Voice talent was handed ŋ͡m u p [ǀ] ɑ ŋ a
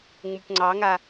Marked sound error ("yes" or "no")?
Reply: yes